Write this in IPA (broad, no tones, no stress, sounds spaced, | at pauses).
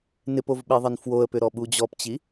n ɪ p o v ɓ e ðˤ ɐ n f w o ə̯ p ʏ ɾ ɔ ɓ u d͡ʑ ɔ p t͡ɕ i